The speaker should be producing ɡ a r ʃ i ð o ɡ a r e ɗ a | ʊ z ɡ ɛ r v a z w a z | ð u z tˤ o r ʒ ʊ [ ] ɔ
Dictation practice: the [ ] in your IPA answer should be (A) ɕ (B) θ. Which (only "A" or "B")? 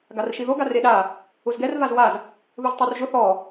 B